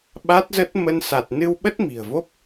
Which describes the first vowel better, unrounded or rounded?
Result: unrounded